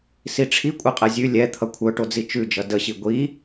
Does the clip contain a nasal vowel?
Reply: no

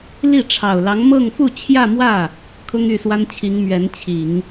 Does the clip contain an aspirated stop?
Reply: yes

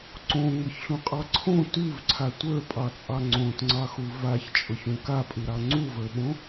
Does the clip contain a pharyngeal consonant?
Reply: no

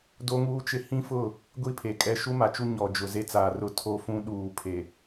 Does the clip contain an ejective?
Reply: yes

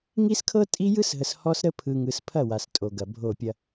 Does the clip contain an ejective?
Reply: yes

